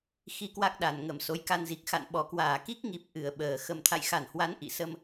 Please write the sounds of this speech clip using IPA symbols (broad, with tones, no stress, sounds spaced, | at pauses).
x i˧ k w a˦˥ k̚ ɗ a˨˩ n ŋ ə˧˩ m s o˨˦ j k a˧ n z i˨˩ k̚ x a̰˧˨ n ɓ ɔ˨˩ k w aː˧˩ k i˦˥ k̚ ŋ i˨˩ p̚ ʔ ɨ˧˩ ə̯ ɓ əː˨˩ x ə˨˩ m t̪ʰ a̰˧˨ j x a˧˩ n h w a˨˦ n ʔ ḭ˧˨ s ə˧ m